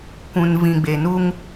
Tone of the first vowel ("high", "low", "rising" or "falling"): low